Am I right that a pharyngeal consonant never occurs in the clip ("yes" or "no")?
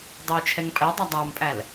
yes